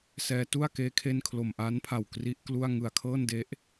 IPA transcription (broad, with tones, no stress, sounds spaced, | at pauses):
s ɛː˧ t u˥˩ a̯ k eː˦˥ kʰ e˥˩ n kʰ l o˨˩ m ʔ a˦˥ n pʰ a˨˩ w k r i˦˥ ʔ k l u˥˩ a̯ ŋ ɯ˨˩ a̯ kʰ ɤː˥˩ n d e˦˥ ʔ